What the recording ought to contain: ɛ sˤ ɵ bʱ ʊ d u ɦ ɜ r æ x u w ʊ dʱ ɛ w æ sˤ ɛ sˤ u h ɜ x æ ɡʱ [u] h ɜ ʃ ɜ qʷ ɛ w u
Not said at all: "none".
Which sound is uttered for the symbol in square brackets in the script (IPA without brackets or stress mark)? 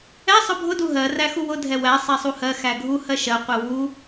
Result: u